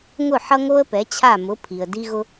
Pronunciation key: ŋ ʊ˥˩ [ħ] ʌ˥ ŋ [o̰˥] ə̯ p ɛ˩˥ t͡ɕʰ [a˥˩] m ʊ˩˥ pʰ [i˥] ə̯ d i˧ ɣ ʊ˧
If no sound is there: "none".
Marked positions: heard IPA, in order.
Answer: ħ, o˥, a˥˩, i˩

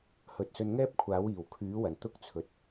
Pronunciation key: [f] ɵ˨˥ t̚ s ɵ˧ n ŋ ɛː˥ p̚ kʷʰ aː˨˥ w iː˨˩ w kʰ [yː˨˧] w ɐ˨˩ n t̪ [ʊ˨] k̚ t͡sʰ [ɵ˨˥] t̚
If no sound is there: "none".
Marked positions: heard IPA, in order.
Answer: h, yː˨˥, ʊ˥, ɵ˨

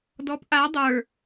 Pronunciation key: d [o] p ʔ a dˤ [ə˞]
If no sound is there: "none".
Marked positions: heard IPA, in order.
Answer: ɔ, ə˞

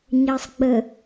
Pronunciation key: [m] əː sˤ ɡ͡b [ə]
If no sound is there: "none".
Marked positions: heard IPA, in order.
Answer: ɲ, ə

